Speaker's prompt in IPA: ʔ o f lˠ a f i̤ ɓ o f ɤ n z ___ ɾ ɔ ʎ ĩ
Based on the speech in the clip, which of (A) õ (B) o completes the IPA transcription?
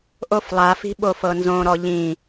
A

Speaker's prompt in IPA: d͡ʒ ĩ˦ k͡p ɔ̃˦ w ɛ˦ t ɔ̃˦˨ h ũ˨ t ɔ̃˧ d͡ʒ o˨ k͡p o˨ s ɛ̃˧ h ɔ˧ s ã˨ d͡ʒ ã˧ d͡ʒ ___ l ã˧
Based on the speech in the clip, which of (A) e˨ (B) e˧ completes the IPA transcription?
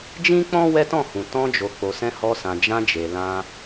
A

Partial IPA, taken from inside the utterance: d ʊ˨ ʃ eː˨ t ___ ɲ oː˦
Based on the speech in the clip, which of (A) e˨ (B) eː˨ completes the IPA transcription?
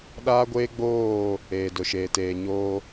B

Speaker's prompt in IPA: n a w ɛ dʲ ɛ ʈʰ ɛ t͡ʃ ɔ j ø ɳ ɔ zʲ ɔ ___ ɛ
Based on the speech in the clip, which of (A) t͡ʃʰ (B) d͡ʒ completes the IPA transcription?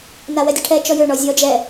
B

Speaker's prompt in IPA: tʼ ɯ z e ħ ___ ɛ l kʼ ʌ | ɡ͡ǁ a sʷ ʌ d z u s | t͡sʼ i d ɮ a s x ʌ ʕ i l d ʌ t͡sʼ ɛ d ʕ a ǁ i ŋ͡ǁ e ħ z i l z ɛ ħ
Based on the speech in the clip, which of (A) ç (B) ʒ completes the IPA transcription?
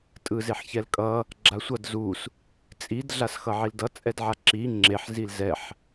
A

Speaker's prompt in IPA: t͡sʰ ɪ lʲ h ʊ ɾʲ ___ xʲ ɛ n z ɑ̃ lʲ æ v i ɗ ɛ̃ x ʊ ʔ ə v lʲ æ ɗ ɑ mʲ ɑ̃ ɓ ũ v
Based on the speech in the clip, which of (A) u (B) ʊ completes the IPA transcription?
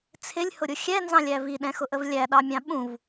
B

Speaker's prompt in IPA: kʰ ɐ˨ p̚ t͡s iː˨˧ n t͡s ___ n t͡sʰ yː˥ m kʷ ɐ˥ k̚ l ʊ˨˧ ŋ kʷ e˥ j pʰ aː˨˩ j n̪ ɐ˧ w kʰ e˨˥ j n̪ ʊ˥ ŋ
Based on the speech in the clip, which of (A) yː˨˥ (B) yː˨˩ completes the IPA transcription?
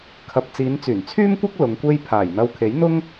B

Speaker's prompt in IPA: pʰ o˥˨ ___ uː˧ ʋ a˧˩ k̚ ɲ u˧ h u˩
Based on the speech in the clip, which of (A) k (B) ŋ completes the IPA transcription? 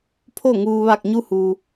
B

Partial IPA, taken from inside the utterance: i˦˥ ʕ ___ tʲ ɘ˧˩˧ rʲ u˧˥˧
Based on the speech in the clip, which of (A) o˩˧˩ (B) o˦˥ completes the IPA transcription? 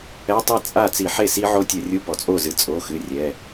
B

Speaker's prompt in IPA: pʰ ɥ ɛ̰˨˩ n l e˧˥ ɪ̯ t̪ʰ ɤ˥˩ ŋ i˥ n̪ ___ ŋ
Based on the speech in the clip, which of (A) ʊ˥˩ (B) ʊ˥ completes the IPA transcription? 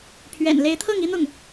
A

